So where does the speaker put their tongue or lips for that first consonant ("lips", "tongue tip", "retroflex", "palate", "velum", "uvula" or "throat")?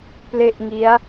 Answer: lips